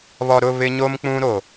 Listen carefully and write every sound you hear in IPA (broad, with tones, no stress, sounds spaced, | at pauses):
β ɔ˨ ɾ ʊ˦˨ β ɪ˦ ɲ o˦ m k͡p ũ˦ ɾ o˨